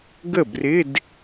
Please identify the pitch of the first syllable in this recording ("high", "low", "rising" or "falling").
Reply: falling